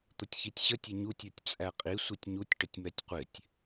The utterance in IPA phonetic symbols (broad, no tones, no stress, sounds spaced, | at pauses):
t̪ ʊ tʲ ç i tʲ ɕ ə tʲ ə ɲ u tʲ ə˞ tʲ t͡sʼ æ qʼ i sʷ i tʲ ɲ u tʲ ʈ ə tʲ m ɛ tʲ qʷ ɪ tʲ